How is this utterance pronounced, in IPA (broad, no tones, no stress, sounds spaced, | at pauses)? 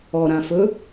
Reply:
ɔ ɾ ã f ɵ